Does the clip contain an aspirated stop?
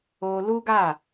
no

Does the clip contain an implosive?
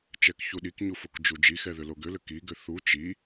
yes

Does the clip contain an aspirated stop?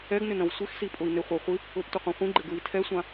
yes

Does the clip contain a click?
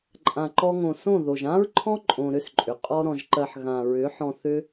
yes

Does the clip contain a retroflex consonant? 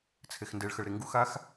yes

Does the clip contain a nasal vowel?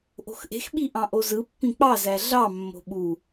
yes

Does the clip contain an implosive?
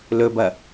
no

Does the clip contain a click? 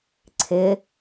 yes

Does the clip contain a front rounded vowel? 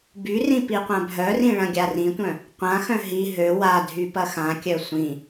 yes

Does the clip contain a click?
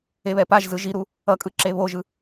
yes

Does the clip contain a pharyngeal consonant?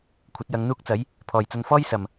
no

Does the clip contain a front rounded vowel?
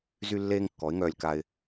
yes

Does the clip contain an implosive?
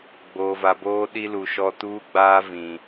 yes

